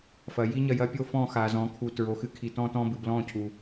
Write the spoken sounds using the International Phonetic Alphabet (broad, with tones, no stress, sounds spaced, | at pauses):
f ɐ˨ j i˦ ɲ ɐ˦˨ j ɐ˦ pʲ o˦ f ɔ̃˦˨ x a˨ z ɔ̃˨ kʰ u˨ t ɹ o˨ x ɨ˦ kʰ i˨ t ɔ̃˦ t ɔ̃˦ b ɨ˨ b l ɔ̃˦˨ cʰ u˨